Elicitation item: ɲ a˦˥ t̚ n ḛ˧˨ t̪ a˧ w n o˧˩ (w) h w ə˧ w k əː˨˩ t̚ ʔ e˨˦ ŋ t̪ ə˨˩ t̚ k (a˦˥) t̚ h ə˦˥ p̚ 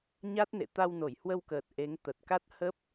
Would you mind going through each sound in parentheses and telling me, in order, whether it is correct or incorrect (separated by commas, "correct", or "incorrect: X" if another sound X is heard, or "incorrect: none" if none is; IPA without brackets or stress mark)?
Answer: incorrect: j, correct